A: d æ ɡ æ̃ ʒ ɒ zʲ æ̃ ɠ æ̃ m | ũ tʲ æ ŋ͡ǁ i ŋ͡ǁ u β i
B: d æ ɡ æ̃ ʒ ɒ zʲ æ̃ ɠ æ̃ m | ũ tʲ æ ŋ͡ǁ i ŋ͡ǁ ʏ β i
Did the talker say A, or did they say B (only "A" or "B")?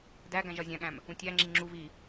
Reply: A